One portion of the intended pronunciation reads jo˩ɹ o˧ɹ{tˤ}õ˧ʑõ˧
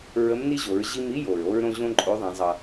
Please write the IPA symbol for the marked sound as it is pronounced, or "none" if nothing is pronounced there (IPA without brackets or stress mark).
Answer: ɾ